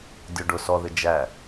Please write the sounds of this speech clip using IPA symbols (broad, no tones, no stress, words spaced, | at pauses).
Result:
dʲʊɖʊ sɔðɪ d͡ʒæ